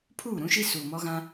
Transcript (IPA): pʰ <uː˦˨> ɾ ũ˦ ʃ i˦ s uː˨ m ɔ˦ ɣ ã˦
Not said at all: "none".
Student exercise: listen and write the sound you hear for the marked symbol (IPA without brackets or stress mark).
uː˦˨